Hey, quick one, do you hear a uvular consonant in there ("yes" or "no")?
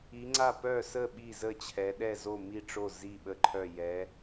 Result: no